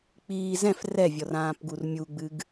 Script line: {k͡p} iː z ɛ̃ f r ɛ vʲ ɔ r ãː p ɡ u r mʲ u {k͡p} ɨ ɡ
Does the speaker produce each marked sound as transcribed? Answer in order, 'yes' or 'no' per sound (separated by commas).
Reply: yes, no